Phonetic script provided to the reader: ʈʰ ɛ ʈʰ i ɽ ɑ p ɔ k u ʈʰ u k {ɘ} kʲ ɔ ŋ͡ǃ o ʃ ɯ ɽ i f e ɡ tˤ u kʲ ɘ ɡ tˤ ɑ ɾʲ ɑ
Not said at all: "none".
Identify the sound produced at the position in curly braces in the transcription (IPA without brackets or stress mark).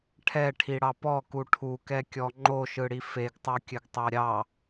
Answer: ɛ